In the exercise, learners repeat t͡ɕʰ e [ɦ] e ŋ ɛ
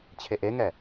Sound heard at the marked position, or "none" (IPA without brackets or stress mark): ʔ